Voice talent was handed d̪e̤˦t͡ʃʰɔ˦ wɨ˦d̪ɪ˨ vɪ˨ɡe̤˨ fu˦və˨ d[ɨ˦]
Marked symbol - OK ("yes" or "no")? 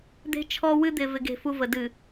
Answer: no